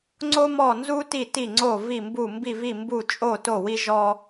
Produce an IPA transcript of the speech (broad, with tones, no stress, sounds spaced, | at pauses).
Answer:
ŋ͡ǀ o˥ m ɔ˥˧ n z u˥ t i˥˧ t i˥˧ ŋ͡ǀ o˥˧ v i˥˧ m b u˥˧ m b i˥˧ v i˥˧ m b u˥˧ t͡ʃʼ o˥˧ t o˥˧ w i˥ ʒ ɔ˥